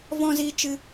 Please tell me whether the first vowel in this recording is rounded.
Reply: yes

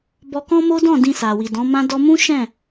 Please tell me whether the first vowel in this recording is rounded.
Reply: yes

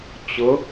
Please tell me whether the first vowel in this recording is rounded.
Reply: yes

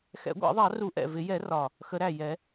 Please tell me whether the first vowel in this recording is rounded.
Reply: no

